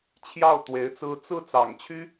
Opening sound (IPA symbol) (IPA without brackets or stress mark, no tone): t͡ɕʰ